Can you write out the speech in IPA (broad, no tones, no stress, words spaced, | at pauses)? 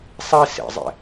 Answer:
sˤi sḛzˤḛ